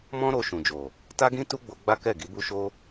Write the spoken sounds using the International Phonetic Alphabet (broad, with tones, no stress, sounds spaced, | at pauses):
m ɔ̃˦ ɾ o˧ ʃ ũ˨ d͡ʒ o˨ | t a˦ ɡ ĩ˦ t u˦ ɡ͡b o˧ ɡ͡b a˦ k ɛ˦˨ ɡ i˨˦ b u˦ ʃ o˦